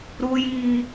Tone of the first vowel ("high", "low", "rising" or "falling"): high